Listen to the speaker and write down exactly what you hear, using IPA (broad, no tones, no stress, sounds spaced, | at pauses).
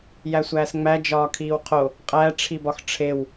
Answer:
j æ sʷ æː s ŋ͡m æ d͡ʒ ɒː kʰ iː w qʰ o | qʼ æ ʈ͡ʂʰ i b ɒ x ʈ͡ʂʰ e w